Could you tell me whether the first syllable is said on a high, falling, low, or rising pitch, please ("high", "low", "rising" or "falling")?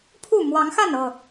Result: falling